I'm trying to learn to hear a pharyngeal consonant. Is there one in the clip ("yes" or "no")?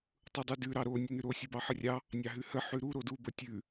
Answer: yes